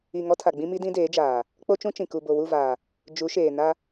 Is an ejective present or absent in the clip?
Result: absent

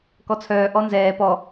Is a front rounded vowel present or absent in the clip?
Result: present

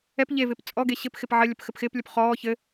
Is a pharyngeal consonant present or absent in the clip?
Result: present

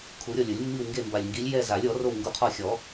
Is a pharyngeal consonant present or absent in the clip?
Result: absent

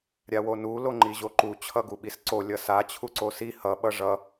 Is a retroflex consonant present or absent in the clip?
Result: present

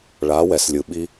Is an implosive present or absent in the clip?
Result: present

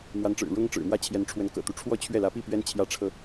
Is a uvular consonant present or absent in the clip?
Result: absent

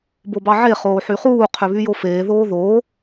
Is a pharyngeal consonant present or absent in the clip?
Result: present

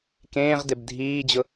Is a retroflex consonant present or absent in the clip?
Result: absent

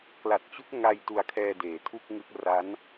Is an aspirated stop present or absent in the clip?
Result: present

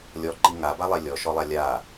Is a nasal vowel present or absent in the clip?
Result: absent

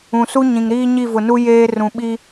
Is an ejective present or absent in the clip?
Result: absent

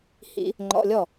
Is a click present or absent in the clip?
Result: present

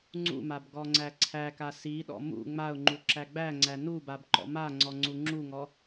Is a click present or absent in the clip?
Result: present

